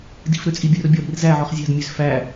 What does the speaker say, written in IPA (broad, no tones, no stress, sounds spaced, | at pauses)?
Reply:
d i̤ f ɾ ø t͡sʼ i bʲ œ r bʲ ɔ ɾ i̤ r z æ ʕ ɔ χ zʲ ɑ̤ d mʲ ø z f æ